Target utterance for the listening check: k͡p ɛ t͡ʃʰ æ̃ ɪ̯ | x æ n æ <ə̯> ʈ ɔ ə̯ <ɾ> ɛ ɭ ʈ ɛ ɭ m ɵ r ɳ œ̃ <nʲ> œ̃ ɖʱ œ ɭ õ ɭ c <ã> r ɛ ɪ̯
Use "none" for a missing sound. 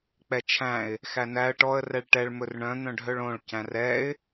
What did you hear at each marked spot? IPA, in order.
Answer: ə̯, r, n̪, æ̃

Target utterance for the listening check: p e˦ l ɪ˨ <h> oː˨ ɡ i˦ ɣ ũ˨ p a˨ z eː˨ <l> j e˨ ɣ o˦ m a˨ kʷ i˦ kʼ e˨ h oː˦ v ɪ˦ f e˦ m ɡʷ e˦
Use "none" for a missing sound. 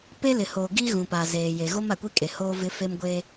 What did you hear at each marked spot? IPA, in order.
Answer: h, none

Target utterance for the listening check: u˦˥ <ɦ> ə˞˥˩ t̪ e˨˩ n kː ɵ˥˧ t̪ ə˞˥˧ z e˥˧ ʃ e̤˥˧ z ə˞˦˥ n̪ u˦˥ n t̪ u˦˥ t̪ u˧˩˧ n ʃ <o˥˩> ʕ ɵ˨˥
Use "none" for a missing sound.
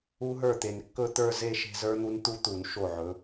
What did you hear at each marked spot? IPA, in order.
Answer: ɦ, o˥˩

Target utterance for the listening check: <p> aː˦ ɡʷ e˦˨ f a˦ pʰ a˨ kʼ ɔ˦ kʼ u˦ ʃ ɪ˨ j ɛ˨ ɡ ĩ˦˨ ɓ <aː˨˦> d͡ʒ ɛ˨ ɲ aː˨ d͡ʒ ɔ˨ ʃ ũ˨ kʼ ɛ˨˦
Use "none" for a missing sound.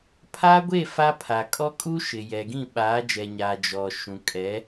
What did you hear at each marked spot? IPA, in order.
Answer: pʰ, aː˨˦

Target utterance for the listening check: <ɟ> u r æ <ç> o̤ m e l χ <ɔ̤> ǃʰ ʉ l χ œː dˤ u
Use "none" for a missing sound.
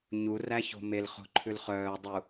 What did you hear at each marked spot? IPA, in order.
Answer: ɲ, ç, o̤

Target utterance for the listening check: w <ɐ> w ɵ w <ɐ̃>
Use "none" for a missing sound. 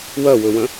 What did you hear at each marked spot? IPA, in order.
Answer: ɐ, ɐ̃

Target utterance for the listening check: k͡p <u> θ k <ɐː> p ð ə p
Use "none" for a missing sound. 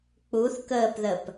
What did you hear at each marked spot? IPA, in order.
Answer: u, əː

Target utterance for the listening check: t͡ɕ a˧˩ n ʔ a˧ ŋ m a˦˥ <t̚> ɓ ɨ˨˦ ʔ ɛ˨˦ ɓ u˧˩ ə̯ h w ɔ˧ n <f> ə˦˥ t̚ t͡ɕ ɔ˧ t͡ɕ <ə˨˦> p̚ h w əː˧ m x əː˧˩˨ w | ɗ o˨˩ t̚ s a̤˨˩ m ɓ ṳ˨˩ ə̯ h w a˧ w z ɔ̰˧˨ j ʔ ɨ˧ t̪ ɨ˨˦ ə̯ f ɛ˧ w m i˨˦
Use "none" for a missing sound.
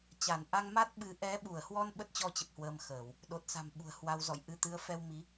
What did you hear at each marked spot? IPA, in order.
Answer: t̚, ɓ, ə˨˩

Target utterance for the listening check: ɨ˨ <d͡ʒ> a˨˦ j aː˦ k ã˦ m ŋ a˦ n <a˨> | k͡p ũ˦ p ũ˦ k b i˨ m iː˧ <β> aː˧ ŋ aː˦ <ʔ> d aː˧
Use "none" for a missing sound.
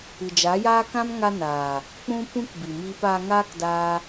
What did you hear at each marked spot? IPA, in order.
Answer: d͡ʒ, aː˨, p, k

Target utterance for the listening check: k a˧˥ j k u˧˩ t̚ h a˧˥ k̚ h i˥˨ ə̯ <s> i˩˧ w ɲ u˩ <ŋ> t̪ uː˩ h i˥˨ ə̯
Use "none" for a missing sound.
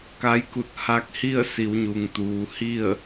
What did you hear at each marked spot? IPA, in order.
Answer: s, ŋ

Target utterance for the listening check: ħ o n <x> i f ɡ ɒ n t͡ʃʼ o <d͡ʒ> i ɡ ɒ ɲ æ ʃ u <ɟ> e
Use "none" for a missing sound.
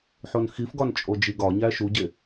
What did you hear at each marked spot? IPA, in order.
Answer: x, d͡ʒ, ɟ

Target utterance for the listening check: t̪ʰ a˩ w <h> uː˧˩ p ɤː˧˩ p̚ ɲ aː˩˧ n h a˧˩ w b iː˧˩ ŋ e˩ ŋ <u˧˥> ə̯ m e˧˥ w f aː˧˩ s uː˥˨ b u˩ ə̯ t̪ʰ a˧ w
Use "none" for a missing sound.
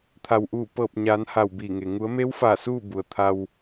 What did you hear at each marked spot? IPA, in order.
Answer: ʔ, u˩˧

